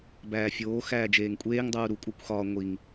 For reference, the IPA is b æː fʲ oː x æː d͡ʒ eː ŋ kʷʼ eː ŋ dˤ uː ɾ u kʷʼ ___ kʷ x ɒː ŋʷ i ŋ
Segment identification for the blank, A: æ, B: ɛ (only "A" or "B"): A